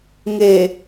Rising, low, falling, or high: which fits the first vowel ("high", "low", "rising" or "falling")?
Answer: low